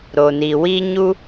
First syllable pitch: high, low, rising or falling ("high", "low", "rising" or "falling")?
low